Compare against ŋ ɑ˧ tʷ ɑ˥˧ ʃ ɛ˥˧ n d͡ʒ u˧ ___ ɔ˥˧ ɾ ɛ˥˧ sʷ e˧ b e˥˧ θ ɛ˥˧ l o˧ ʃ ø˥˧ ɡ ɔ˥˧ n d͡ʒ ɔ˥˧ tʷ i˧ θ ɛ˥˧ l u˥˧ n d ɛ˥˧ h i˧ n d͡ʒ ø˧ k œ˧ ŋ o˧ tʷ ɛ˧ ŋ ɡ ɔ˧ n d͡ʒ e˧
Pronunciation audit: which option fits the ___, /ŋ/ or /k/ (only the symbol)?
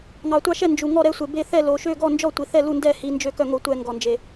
ŋ